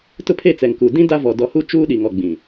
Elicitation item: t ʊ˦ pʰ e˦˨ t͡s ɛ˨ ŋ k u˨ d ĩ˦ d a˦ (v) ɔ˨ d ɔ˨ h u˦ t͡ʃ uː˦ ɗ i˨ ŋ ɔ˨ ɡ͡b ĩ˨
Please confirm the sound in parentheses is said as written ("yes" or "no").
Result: yes